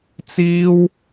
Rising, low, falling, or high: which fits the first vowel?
high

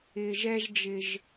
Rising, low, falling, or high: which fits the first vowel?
high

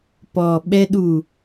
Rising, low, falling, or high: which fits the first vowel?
low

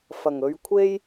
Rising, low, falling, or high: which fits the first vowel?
low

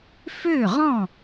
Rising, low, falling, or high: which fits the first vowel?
falling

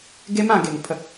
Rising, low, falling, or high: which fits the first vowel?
high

